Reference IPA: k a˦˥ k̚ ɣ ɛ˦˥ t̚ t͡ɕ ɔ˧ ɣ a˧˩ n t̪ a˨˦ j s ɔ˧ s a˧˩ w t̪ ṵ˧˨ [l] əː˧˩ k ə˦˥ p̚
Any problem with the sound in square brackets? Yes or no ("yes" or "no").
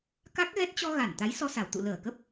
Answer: no